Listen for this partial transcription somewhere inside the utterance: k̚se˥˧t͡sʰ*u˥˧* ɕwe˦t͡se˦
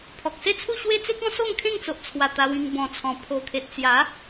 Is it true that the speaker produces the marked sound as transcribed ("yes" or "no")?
yes